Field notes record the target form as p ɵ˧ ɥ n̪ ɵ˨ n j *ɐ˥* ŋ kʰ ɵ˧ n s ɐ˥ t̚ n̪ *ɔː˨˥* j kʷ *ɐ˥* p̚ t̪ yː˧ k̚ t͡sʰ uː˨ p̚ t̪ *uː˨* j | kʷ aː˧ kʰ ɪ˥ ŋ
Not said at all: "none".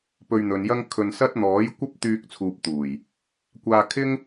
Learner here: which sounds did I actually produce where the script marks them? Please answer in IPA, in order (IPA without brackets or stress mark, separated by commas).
ɐ˥, ɔː˨˥, ɐ˥, uː˨˩